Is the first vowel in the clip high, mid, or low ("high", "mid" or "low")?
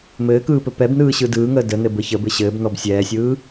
mid